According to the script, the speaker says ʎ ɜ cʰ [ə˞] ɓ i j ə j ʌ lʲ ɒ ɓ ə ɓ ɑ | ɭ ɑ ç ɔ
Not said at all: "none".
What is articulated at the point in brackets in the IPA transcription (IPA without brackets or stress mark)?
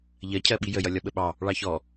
ɜ